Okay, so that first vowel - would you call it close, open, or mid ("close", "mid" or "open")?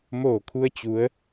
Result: mid